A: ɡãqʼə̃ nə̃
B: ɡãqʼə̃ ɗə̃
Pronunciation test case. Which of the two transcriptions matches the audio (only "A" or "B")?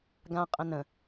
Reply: A